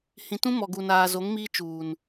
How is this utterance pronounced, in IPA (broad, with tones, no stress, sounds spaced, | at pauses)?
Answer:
h ĩ˨ t ũ˦ m ɔ˨ ɡ u˨ n aː˨ z o˨˦ ŋ m iː˦ t͡ʃ uː˨ n